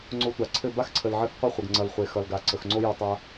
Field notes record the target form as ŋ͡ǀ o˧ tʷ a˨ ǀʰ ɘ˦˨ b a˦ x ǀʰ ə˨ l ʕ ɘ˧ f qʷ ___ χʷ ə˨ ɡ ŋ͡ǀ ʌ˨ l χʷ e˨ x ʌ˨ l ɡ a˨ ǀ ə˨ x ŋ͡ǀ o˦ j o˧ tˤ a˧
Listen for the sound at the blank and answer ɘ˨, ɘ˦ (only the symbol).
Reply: ɘ˦